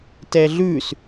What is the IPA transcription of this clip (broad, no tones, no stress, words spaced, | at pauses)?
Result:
tɛɮʉs